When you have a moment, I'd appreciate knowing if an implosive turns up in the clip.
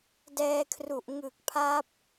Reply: no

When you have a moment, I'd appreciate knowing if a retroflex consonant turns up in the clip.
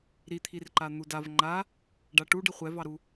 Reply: yes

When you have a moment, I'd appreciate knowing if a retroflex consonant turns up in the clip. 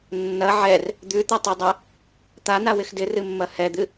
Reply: no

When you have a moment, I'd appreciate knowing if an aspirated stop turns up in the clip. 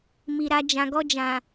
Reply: no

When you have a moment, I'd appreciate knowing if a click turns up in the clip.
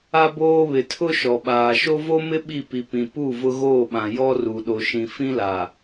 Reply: no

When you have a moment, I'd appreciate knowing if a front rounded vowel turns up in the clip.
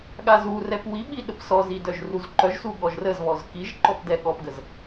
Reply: yes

